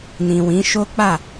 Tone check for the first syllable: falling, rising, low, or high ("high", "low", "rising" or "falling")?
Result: low